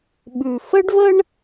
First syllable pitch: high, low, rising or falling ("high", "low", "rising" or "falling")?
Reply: low